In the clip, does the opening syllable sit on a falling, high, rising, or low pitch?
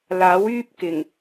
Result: rising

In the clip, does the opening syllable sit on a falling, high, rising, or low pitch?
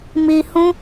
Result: low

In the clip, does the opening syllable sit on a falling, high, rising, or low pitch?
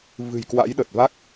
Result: low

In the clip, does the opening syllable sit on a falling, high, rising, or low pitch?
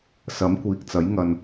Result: rising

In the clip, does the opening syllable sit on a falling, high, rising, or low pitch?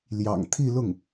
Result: low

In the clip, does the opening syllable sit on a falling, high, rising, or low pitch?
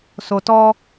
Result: low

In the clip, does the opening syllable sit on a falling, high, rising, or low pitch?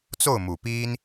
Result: falling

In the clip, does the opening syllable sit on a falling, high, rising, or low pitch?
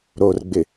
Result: low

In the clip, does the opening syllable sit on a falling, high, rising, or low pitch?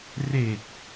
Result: low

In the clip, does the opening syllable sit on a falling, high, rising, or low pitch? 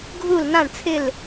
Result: falling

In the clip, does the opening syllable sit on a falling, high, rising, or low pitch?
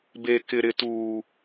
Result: low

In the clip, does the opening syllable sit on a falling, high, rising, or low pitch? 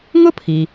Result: high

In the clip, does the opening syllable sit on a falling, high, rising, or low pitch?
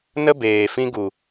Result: high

